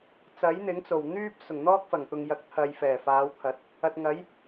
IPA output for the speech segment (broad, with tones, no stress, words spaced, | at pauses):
t͡sɐ˨˥jn̪ɪ˨˥ŋ t͡so˨˩wn̪yː˥p̚ sʊ˨˩ŋn̪ɔː˥k̚fɐ˨˩ŋ t̪ʊ˨ŋjɐ˨k̚ t̪ʰɐ˨j fɛː˨˩faː˨˧wt̪ʰɐ˨˥t̚ | ɐ˨t̚ŋɐ˨˥j